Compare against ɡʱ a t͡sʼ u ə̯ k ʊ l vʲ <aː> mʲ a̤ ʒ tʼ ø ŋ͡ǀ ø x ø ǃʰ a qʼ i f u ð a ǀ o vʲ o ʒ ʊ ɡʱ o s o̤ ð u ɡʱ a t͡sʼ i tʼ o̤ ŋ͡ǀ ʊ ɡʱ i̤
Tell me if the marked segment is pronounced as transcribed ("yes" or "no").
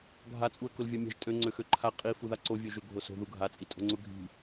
no